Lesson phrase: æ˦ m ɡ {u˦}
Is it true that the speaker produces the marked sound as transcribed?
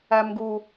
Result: yes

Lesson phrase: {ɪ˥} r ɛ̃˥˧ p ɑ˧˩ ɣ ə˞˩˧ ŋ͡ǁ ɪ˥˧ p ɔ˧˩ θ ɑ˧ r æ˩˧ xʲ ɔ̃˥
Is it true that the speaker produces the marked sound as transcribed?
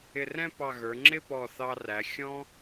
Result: no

